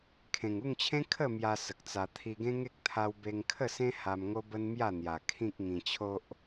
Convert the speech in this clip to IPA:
kʰ ẽ˨˩ ŋ u˥˧ ŋ t͡ɕʰ ẽ˦ kʰ ə˥˧ m j a˧ s ə˨ k̚ t͡s a˧ t̪ʰ i˧ ɡ ẽ˦ ŋ e˦ k̚ t̪ʰ a˦ w b e˧ ŋ kʰ ə˥˧ s ẽ˦ h a˧ m ŋ o˦ b ə˦ n m j a˥˧ n̪ j a˨˩ kʰ ĩ˦ k̚ ŋ ĩ˧ t͡ɕʰ o˦ ʔ

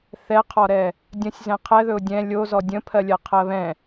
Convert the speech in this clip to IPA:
θ ɛ qʰ ɔ ɾ ɛ | dʲ ə̃ sʲ z ɛ̃ qʰ ɛ ð ɵ ʊ̯ dʲ ɛ̃ lʲ o z ɔ dʲ ə̃ pʰ ɜ lʲ ɜ qʰ ɜ β ɛ̃

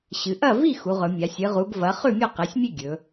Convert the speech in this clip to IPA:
ɕ ɨ˩˧ ʔ ɐ˥˨ v i˥˨ x u˩˧ ʁ ɵ˩˧ mʲ a˩˧ sʲ ɨ˩˧ ʁ u˩˧ ɡ v ɐ˩˧ χ ʉ˥˨ mʲ o˥˨ q e˩˧ sʲ mʲ e˥˨ ɡʲ ɵ˩˧

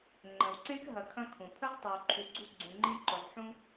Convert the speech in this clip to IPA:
ŋ͡ǃ ə̃˩ w ǀ ẽ˥ k ɦ ɐ˨ kʰ ɐ̃˦ kʰ ũ˩ pʰ ə˥ ʁ tˤ i˨ w ǃʰ u˨ ɡ͡ǀ u˦ ɡ͡ǀ ũ˨ ŋ͡ǃ ĩ˦ ǃ ɵ˨ ʁ ħ ũ˥

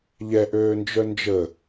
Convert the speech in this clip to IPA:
ʎ ɛ ʔ øː n d͡ʒ œ n d͡ʒ ə

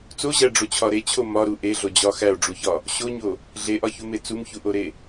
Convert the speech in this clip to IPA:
t͡s o ʑ æ ɖ͡ʐ o t͡ɕʰ ɒ ɾ e t͡ɕʰ o m ɒ ɾ u ʔ e ɮ o d͡ʑ ɒ x æ o̯ ɖ͡ʐ u ç ɒ | ɕ o ɲ o | ɮ e ʔ ɒ ç u m e t͡s u m ç u ʔ o ɾ e

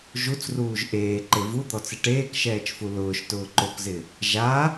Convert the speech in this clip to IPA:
ʒ u t͡s r uː ʒ ʔ eː ǃ e v u d̪ ɔ t͡s ɪ ʈ eː k ʃ ɛː t͡ʃ f u l ʊː ʃ t ʊː ǃ o k z ɪ | ʒ a

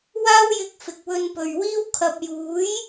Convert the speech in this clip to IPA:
w aː˥ w j ɪ˧ k̚ f ɪ˨ k̚ w ɵ˧ n p ɵ˨ ɥ w iː˥ w kʰ ɐ˨ p̚ j uː˨˥ j

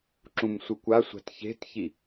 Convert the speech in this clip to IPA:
ǁ ũ m sʷ ɯ kʷ a sʷ a̤ t ç e̤ t ç i

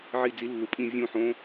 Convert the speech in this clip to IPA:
ʕ i˧˩ d͡z i˨˩˦ lː u˩ pʼ ĩ˧˩ vʲ ũ˧˩ ħ õ˨˦

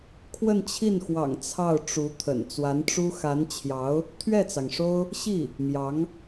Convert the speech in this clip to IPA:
kʰ w ə˥˧ n t͡ɕʰ i˥˩ n x w ɑ̰˨˩ ŋ t͡sʰ ɑ˥˩ ʊ̯ ʈ͡ʂ u˧˥ t̪ʰ ə̰˨˩ n t͡s w a˧˥ n ʈ͡ʂ u˥ x a˧˥ n t͡ɕʰ j ɑ˧˥ ʊ̯ | t̪ʰ ɥ ɛ˥˩ t͡s ɑ˩ ŋ ʂ o˥ ʊ̯ | ɕ i˥˩ | m j ɑ˧˥ ŋ

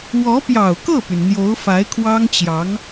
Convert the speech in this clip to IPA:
w ɔ˧˥ p j ɑ˨˩ ʊ̯ k ɤ˥˩ p y˩ n n̪ j o˧˥ ʊ̯ f a˧˥ ɪ̯ kʰ w ɑ˥ ŋ t͡ɕ j ɑ˧˥ ŋ

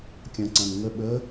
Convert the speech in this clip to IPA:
kʲ ɐ̃ ǀ ɐ̃ n ŋ ə ɓ ə

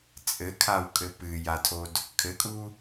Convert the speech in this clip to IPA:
t͡sʼ ɘ kʰ a w kʼ ɘ p ɨ j a tʰ o d | kʰ ɘ kʼ u

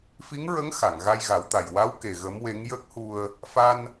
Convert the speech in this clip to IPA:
f i˧˥ ŋ ɹ ə˧˥ ŋ x a˨˩˨ ŋ ɣ a˧ j ɣ a˨˩˦ w t̪ a˨˩ j w a˧˥ w k e˨˩ ɣ ə˧˥ m w e˧˥ ŋ j ə˦˥ k̚ h u˧ ə̯ | f a˧ n

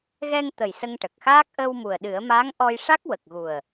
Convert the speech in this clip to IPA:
ɣ ɛ˧ ŋ t̪ ə˨˩ j s ə˧ ŋ ʈ ə˨˩ k̚ x aː˦˥ k̚ ʔ əː˧ w m u˨˩ ə̯ ɗ ɨ˨˩˦ ə̯ m aː˧˥ ŋ ʔ ɔ˧ j ʂ a˦˥ k̚ w ə˨˩ k̚ ɣ u˨˩ ə̯

